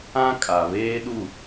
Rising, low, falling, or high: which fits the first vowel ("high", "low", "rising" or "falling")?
high